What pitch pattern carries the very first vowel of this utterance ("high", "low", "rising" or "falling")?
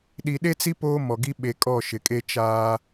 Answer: low